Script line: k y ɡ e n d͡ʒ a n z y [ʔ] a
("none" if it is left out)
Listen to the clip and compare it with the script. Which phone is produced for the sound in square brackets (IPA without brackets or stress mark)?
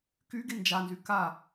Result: k